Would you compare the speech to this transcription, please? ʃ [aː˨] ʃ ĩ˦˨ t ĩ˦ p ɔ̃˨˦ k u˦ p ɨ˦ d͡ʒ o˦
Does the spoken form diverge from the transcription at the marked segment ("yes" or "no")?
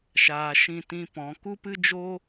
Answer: no